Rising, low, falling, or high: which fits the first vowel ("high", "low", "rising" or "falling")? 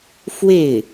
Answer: falling